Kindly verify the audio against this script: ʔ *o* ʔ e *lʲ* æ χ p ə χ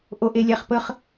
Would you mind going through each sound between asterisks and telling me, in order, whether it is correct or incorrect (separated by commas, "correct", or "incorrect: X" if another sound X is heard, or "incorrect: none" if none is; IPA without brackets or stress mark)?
correct, correct